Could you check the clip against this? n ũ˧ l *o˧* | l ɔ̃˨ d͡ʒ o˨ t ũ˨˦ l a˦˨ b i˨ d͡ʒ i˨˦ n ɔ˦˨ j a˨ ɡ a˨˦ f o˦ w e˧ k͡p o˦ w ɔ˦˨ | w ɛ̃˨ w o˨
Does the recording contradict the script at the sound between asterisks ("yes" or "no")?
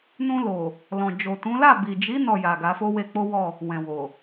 yes